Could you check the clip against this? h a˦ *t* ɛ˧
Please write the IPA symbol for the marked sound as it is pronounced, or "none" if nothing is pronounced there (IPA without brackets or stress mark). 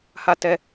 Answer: t